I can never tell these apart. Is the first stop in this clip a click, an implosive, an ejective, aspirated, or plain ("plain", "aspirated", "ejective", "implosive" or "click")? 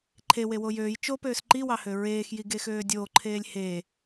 click